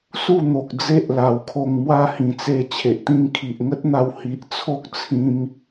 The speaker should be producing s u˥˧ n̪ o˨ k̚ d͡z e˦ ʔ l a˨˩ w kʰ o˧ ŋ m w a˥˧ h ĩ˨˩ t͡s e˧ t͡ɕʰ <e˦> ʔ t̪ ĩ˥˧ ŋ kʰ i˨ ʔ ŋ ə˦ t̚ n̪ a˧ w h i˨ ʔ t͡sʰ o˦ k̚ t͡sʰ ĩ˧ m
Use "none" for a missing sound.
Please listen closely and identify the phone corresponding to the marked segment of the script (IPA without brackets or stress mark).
e˨